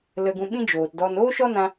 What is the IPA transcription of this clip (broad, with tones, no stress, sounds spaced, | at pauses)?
l ə˧ ɡ ũ˧ ɓ ĩ˦ d͡ʒ oː˨ t d ɔ˧ n oː˦ ʃ ɔ˦ n ã˧